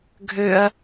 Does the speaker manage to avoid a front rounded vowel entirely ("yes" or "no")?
no